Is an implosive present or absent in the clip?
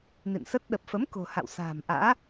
present